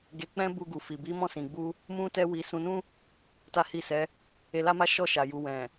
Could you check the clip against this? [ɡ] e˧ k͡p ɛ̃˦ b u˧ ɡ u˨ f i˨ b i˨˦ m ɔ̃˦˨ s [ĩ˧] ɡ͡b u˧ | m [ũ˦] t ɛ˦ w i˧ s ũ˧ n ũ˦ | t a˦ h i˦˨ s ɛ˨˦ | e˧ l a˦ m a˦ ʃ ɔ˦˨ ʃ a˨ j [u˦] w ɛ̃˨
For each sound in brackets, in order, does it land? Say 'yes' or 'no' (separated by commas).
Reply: yes, no, yes, no